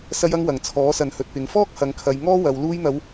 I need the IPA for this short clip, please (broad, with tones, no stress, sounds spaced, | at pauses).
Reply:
s ɐ˧ j ɐ˧ ŋ w ɐ˨˩ ŋ t͡sʰ ɔː˨˥ s ɐ˨ n h ɵ˨ t̚ p ɪ˨˥ ŋ f ɔː˥ k̚ h ɐ˨˧ ŋ kʰ ɐ˨˧ j ŋ ɔː˥ w ɐ˨˧ w l uː˧ j n̪ ɐ˨˧ w